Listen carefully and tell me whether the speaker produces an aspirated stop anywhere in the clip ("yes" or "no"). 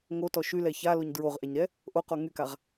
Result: no